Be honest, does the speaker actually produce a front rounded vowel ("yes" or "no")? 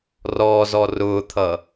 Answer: no